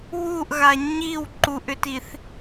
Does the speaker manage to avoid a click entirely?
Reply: no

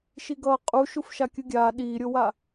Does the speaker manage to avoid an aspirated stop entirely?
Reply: yes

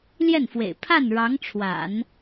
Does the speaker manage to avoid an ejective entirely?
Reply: yes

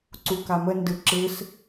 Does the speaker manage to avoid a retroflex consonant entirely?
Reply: yes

